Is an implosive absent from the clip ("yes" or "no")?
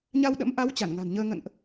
no